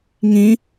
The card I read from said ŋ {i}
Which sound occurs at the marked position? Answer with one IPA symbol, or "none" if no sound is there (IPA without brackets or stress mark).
ĩ